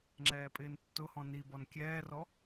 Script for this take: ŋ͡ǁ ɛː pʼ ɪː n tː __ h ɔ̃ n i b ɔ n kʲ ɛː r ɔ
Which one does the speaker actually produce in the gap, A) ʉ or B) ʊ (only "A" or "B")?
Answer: B